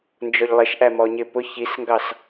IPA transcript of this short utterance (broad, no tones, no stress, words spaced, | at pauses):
nd͡ʒɔʎlˠɪʃʔæ mɔɲɪ pʊ çisŋɡɑs